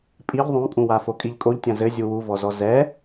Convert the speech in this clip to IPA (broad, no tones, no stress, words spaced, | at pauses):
pʼiʎ ðˤõkʼũwafo kʼiʎkʼoʎtʲɐ̃ zɘ zʲuwuvɔzɔ zɛ